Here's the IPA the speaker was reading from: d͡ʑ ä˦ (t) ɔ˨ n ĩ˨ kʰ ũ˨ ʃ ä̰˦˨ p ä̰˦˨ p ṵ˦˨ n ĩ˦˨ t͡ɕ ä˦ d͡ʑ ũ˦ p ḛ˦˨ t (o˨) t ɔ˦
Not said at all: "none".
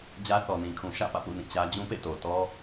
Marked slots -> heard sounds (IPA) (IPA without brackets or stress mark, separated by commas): θ, o˨